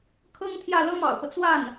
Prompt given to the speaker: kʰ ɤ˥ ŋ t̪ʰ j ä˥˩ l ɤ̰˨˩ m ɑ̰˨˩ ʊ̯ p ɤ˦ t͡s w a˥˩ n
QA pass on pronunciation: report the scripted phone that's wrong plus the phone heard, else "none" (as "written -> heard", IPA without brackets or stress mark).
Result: ɤ̰˨˩ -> ɤ˥